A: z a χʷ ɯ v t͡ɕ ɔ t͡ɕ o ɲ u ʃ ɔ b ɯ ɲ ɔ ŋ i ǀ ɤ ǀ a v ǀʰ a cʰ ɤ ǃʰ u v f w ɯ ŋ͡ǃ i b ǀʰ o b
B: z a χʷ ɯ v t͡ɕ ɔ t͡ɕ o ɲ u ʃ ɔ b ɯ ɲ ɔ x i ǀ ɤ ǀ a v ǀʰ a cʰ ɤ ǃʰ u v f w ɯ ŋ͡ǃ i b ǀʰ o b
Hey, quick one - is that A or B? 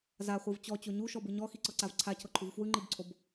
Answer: B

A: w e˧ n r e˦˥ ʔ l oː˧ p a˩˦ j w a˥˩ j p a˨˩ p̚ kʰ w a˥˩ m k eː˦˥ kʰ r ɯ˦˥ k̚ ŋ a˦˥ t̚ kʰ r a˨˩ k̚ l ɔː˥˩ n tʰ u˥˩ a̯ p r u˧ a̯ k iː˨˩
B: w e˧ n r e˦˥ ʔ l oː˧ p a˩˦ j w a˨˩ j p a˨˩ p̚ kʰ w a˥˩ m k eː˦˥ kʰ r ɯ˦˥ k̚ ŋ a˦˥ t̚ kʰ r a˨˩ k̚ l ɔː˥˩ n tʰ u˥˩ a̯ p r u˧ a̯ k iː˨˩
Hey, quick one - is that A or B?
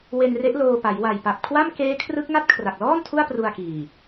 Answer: B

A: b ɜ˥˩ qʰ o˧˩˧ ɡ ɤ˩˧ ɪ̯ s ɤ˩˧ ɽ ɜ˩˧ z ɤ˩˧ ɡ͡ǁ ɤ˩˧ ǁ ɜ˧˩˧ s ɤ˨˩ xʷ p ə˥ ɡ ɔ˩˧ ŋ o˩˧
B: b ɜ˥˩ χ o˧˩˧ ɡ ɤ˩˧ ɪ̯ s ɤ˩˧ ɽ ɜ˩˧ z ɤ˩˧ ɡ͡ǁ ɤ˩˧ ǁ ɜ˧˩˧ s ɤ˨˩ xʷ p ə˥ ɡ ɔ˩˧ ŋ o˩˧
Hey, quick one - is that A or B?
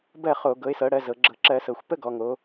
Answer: B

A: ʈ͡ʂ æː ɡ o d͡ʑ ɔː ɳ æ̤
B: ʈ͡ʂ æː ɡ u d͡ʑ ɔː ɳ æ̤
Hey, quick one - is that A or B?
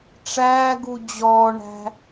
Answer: B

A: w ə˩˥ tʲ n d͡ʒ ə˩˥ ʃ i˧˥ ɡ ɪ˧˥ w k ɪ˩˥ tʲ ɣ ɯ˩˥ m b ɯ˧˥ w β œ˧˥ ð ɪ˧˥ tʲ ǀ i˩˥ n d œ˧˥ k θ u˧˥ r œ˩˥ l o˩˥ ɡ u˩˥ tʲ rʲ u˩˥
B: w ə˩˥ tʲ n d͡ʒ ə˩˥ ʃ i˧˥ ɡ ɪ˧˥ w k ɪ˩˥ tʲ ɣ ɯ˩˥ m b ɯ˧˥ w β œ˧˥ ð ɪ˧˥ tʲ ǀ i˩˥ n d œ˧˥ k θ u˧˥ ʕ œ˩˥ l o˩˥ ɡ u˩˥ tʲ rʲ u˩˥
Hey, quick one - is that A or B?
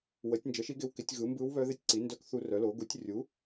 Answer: A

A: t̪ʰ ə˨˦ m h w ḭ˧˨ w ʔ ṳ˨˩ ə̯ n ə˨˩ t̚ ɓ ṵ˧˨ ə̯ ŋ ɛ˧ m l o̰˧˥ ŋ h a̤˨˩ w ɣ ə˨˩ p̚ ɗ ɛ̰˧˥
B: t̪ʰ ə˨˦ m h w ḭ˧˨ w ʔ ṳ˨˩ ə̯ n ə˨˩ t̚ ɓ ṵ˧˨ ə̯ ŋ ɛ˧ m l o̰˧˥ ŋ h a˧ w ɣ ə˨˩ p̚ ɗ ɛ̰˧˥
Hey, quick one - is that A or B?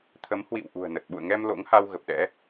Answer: B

